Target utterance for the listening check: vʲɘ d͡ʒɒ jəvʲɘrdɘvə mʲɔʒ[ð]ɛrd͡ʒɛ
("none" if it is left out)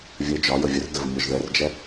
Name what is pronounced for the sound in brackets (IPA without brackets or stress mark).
ð